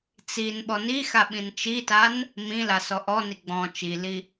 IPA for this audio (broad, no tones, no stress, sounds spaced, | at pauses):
t͡s i n ɓ ɔ n i x a ɓ ĩ n t͡ʃ i t a n | m ĩ l a s ɔ ʔ ɔ n i ɡ͡b ɔ̃ t͡ʃ i l i